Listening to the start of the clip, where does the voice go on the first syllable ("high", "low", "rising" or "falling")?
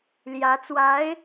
rising